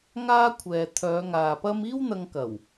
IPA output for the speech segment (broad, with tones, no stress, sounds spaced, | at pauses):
ŋ aː˥ kʷʰ ɛː˨ t̪ʰ œː˨˧ ŋ aː˨ p ɐ˥ m iː˥ w n̪ ɐ˧ ŋ k ɐ˨˩ w